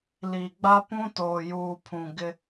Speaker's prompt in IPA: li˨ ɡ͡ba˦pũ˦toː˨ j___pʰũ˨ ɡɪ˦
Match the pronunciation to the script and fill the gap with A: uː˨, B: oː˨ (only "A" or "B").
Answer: A